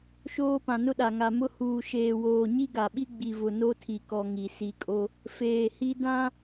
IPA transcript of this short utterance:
ʃoː˦pã˨nʊ˦ɗa˨ ŋa˨mʊ˦ huː˨ʃeː˨woː˨ ɲi˦ɡa˨ɓi˦ ɡ͡bi˨vʊ˨ no˦tʰi˨kɔ˨ ŋi˨ si˨kʼo˦ | feː˨hi˦ dã˦

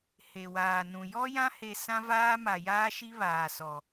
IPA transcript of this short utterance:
he˨waː˨nũ˨ jɔ˦jã˦he˨ sã˦vaː˦ ma˨jaː˦ʃi˦ βaː˨sɔ˨

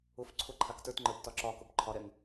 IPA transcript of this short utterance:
ʊfǀʰʊ ǃʰaktə˞tŋ͡ǃə˞b tɒǁɒkʊb ǃʰɒɾɛŋ

